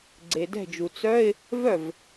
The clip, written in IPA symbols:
ɡ͡ǀ e˩ d ɛ̤˧˩ d͡ʒ u˩ t͡s œ˧˥˧ ɪ̯ | v œ˥˩ v

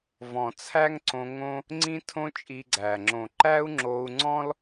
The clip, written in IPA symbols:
v ɔ̃˨ t͡sʰ æ˦ ŋ ǀ õ˧ ŋ õ˦ | ŋ͡ǀ ĩ˦ tʰ õ˦ t͡ʃʼ i˧ ɡ͡ǀ æ˨ ŋ͡ǁ õ˨ ǃ æ˦ u̯ ŋ͡ǁ o˧ u̯ ŋ͡ǀ ɔ̃˦ l

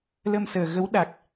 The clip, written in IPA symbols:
l ə˧ m s əː˨˩ ɣ ə˨˦ w ɗ a˨˩ k̚

